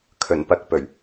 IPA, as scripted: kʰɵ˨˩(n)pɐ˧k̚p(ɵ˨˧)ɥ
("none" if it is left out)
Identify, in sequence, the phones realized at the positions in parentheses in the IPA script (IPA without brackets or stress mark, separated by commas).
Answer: n, ɵ˨˩